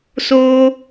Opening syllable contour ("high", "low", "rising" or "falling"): high